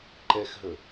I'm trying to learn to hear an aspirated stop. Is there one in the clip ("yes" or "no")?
no